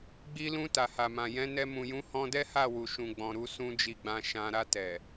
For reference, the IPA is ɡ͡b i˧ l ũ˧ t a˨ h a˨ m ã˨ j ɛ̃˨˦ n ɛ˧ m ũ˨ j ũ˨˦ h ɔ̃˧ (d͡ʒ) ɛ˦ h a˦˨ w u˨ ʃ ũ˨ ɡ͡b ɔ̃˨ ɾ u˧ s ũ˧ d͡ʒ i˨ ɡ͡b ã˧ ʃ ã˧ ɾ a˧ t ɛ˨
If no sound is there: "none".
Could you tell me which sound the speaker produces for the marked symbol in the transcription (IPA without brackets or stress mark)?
d